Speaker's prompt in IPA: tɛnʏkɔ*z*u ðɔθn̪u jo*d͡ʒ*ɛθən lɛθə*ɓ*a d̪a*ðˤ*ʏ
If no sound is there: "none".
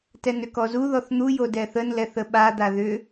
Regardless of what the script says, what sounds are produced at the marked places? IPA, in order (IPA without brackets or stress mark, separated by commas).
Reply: z, d, ɓ, ð